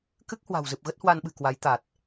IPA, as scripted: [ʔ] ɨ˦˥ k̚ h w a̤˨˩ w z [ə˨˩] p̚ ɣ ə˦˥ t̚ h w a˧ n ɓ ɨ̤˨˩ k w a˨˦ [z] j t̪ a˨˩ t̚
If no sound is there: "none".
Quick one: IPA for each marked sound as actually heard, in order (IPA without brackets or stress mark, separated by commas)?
k, ɨ˨˩, none